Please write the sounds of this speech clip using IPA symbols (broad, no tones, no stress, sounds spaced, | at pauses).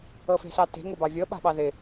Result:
ɤ f e̤ s ɑ t e̤ ŋ o b ɑ vʲ ɤ ɓ a̤ ɓ ɑ ð ɪ